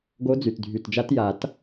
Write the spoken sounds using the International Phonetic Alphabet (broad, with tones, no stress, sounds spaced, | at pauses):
ɡ o˧˥ d͡z y˨˩ t dʱ y˨˩ t d͡ʒ a˧˥ t j a˨˩˦ t